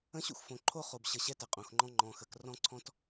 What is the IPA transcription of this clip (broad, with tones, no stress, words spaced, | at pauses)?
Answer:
ə̃˦ɕṵ˦xfõ˨ ǃʰo˦χo˨b ɕə˨ ɕɛ˦tɛ˨qʼõ˨xŋ͡ǃɔ̃˦ ŋ͡ǃɔ̃˨xə˨k rɔ̃˦ǀʰɔ̃˦t